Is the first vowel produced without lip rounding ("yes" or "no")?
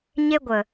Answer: yes